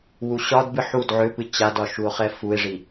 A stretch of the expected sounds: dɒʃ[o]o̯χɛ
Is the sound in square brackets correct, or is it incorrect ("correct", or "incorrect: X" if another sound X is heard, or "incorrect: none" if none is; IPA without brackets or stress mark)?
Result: incorrect: u